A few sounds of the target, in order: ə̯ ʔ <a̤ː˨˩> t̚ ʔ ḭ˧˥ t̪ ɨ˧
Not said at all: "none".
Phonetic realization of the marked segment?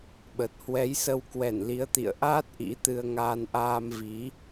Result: aː˦˥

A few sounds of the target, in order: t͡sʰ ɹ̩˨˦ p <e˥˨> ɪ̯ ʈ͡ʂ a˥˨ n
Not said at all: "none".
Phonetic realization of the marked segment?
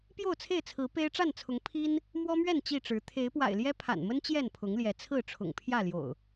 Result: e˦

